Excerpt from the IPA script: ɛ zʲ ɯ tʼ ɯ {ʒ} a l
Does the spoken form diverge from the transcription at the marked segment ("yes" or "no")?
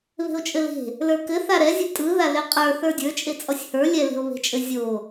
yes